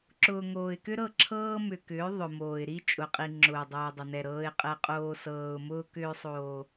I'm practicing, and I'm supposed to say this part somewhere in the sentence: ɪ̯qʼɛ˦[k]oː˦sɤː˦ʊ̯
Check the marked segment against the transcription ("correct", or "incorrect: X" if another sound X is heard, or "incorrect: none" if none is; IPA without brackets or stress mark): incorrect: qʼ